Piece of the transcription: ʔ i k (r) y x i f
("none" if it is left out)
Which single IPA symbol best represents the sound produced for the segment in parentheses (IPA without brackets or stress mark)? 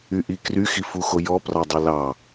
r